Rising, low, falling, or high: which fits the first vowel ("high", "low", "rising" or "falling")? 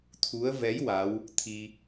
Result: rising